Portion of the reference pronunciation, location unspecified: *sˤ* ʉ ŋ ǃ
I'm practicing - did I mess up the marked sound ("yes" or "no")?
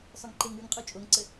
no